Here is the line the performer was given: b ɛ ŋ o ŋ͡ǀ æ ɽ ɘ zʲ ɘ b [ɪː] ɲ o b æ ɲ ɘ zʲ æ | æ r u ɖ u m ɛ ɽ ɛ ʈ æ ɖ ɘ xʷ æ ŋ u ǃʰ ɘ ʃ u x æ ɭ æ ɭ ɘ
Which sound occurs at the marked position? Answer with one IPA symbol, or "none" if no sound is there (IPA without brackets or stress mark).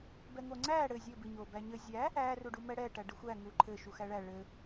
ɪ